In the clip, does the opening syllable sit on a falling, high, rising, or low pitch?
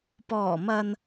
low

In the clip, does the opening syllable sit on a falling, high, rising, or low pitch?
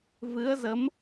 rising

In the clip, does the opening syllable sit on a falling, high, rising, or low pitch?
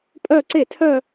falling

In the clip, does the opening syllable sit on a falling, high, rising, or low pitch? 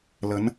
rising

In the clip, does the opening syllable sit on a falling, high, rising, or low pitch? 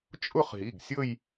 falling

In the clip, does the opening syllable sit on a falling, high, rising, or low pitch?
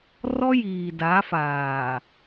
high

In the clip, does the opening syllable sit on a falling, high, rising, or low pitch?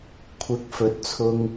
rising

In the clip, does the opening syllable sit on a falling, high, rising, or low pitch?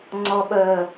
low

